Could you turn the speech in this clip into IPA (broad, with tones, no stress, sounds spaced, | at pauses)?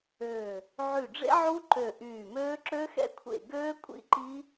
øː˧˩ | ʕ y˧˩ ɖ͡ʐ ḛ˦˥ ʕ u˦˥ ǃ ø˧˩ ʔ yː˧˩ m øː˦˥ ǁ ø˦˥ x ɛ̰˦˥ kʷʰ ḛ˧˩ ɡ øː˦˥ kʷʼ ḭ˦˥ ǃ i˦˥